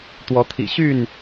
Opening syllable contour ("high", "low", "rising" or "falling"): rising